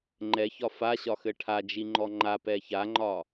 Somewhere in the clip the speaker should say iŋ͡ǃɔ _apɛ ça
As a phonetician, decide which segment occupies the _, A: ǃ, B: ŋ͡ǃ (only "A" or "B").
B